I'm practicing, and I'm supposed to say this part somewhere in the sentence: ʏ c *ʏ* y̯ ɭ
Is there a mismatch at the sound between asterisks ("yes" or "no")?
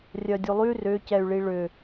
yes